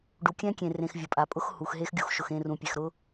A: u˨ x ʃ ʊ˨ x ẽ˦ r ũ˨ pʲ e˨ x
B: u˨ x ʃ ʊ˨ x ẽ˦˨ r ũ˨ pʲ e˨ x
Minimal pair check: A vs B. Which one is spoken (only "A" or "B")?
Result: B